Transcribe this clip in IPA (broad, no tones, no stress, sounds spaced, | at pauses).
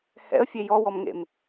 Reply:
h ɛ̰ ə̯ fʲ e j ɔ w ɔ m ŋ ḛ m